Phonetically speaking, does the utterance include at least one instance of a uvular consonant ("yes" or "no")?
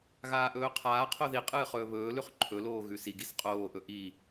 yes